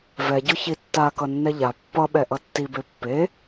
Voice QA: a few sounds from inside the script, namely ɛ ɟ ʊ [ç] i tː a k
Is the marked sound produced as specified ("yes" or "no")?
yes